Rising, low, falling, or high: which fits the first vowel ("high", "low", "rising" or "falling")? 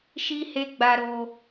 high